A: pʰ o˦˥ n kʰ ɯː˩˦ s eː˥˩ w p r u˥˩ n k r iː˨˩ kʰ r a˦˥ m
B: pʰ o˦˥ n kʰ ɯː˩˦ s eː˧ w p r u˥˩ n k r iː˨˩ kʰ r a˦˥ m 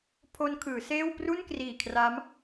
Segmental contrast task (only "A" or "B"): A